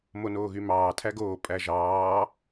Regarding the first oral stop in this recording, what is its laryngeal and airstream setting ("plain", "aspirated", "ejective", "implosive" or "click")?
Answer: aspirated